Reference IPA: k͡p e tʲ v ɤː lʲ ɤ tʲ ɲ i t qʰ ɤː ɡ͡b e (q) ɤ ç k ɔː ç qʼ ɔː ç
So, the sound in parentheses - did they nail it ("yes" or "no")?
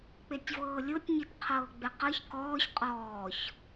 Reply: yes